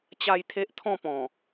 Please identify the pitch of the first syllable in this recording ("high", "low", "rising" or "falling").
high